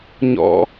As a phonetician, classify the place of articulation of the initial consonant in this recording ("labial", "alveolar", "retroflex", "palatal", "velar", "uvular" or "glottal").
palatal